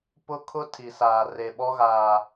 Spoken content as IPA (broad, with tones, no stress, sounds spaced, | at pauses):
p ʊ˦ kʰ ʊ˦ tʰ i˨ s aː˨ r e˨ ɓ ɔ˦ ɣ aː˨